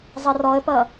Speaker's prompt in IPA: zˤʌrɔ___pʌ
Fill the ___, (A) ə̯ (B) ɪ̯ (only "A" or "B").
A